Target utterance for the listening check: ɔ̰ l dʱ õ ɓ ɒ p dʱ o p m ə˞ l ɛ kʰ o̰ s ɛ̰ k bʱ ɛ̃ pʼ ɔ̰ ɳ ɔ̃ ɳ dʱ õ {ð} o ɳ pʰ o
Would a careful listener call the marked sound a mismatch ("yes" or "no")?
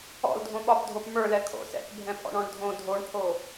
yes